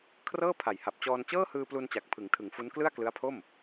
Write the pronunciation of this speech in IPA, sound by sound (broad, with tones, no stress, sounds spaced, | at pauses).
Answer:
kʰ r ɤː˥˩ pʰ a˨˩ j h a˨˩ p̚ t͡ɕ ɔː˧ n t͡ɕ ɤː˥˩ h ɯː˧ p l u˧ n t͡ɕ a˨˩ k̚ pʰ ɯ˩˦ ŋ tʰ ɯ˩˦ ŋ f u˦˥ n k l ɯ˥˩ a̯ k l ɯ˦˥ a̯ pʰ o˥˩ m